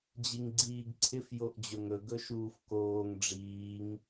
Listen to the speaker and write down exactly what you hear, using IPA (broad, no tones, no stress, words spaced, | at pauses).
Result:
d͡ʑiŋɡ͡ǀiːɡǀʰɪf joʔd͡ʑɵŋɵ ɡɵʃuːfkoːŋ ɖ͡ʐiːŋ